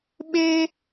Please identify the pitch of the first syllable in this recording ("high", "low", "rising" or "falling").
high